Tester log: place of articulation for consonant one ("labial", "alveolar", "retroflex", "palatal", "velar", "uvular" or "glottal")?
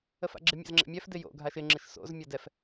labial